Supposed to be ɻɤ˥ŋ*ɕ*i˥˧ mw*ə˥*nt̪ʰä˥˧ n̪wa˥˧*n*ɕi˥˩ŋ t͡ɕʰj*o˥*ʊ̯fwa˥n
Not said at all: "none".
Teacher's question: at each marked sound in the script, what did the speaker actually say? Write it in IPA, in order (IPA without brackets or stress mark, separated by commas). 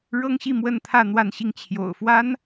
ɕ, ə˥˧, n, o̰˨˩